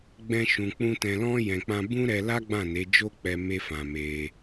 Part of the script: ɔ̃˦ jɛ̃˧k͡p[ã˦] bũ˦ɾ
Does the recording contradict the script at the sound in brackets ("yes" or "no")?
no